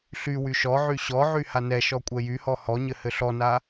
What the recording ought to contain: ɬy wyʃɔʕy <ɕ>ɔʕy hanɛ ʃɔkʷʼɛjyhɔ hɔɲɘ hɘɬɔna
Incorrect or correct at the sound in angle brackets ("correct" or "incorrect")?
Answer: correct